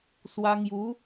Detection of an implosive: absent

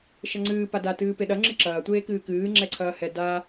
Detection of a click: present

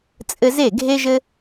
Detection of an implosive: absent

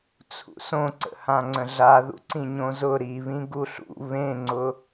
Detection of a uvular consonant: absent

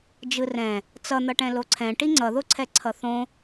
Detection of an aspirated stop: present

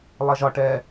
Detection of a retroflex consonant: present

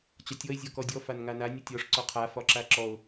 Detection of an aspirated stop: present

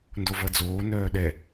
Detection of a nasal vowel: absent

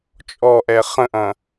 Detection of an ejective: present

